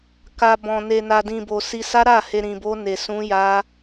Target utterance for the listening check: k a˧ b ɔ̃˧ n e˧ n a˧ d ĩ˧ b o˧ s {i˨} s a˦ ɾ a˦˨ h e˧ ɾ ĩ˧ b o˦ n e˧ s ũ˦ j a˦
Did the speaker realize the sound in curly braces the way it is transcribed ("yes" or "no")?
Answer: no